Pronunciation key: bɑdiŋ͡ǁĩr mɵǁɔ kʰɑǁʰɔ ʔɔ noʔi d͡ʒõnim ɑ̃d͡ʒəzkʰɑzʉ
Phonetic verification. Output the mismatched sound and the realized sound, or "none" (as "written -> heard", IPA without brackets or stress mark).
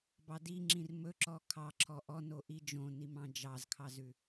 ə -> ɑ